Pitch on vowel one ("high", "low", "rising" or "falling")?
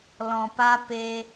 low